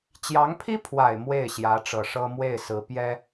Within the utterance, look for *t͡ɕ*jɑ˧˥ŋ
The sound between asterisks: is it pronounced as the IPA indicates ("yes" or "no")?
yes